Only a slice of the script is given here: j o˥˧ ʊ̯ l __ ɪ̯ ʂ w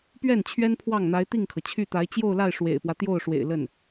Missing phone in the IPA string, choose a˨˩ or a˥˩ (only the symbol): a˥˩